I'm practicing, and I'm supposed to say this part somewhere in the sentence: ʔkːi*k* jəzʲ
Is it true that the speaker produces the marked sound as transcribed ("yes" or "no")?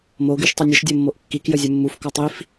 yes